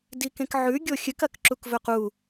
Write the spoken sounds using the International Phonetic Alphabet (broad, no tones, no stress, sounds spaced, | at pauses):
d i k ẽ k ʕ ʉ ɡʲ o xʲ ɨ k ɐ k ǁ u k v ɵ q u